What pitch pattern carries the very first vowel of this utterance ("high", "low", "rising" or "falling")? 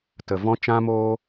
low